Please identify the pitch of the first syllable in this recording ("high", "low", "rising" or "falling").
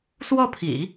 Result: falling